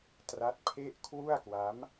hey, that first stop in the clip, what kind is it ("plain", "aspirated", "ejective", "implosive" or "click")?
plain